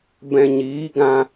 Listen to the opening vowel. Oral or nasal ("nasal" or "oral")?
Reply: nasal